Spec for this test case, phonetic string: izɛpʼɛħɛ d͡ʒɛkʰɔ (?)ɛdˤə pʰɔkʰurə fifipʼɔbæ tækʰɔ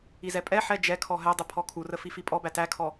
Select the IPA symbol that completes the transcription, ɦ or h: ɦ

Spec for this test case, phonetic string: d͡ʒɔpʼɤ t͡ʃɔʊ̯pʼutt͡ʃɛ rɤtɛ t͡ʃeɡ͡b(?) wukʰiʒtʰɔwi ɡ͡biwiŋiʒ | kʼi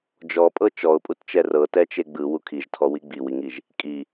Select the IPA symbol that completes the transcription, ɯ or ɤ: ɯ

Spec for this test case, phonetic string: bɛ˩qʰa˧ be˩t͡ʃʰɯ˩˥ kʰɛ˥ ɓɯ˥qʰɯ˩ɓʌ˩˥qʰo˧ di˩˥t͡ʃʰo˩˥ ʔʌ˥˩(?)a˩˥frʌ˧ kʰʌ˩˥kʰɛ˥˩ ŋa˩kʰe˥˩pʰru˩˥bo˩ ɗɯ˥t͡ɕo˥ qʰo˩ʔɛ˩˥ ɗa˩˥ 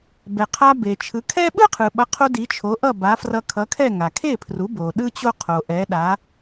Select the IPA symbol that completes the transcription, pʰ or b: b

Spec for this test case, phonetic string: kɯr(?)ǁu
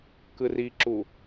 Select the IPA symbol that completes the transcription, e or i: i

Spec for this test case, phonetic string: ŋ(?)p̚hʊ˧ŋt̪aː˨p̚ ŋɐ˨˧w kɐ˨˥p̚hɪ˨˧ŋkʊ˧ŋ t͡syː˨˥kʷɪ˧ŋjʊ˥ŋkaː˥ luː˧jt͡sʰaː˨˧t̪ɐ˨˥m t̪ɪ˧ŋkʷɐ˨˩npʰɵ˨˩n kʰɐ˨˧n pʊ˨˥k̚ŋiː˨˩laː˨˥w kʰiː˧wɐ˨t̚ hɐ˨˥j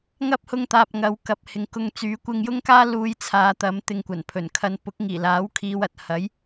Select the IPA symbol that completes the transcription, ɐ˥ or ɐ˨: ɐ˥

